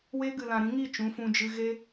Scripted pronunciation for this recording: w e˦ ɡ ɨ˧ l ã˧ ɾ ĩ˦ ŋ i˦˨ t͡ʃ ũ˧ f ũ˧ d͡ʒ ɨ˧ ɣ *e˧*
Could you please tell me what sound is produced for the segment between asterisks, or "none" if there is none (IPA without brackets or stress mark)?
e˧